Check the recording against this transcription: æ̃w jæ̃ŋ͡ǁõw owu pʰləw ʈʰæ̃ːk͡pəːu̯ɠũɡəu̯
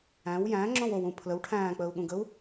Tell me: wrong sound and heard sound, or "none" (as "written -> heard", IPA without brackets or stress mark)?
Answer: u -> ũ